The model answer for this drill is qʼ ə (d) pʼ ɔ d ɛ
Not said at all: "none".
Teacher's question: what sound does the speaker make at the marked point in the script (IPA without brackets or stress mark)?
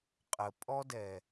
none